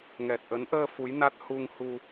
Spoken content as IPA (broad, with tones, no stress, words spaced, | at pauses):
ŋɛ˨˩t̚ʔə˨˦n ʔəː˧ fu˨˦jna˦˥t̚ hu˧ŋhu˧